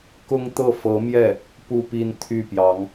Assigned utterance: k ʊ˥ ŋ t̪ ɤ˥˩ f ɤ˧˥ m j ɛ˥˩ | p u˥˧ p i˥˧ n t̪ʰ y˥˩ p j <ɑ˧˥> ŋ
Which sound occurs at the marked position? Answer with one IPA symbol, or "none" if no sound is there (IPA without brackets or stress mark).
ɑ˧˥